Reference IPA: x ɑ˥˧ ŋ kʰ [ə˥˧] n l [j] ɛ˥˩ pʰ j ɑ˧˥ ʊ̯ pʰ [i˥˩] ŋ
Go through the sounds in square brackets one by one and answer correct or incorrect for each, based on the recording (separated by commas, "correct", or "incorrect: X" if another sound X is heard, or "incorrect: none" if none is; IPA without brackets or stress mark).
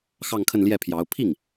correct, correct, correct